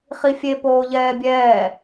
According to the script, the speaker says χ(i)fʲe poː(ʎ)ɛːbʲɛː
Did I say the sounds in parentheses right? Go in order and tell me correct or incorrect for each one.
correct, correct

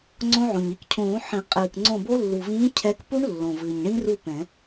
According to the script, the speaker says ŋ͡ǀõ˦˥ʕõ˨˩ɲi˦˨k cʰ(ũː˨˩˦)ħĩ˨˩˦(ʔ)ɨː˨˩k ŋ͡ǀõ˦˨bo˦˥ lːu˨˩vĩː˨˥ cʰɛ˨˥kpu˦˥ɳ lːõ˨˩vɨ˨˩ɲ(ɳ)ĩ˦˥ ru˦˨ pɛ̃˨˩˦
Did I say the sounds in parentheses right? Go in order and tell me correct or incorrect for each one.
correct, incorrect, correct

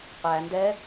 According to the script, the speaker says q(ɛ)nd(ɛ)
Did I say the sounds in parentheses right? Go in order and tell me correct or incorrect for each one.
incorrect, correct

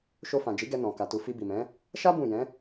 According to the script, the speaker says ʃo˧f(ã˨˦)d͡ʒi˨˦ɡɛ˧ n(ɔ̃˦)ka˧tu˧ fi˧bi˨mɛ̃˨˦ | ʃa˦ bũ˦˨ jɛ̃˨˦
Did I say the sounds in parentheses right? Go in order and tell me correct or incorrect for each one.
incorrect, incorrect

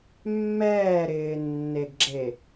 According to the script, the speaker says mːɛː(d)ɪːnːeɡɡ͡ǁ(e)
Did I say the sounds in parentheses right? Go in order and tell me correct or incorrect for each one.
incorrect, correct

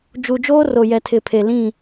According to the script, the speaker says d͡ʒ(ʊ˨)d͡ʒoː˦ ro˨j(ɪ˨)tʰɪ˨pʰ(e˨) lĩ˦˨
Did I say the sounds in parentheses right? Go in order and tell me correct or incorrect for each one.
incorrect, incorrect, correct

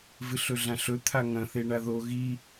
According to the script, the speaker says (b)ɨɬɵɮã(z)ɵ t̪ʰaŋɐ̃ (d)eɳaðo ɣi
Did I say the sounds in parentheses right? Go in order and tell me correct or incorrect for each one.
incorrect, incorrect, incorrect

